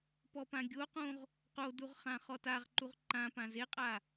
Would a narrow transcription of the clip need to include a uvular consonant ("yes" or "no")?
yes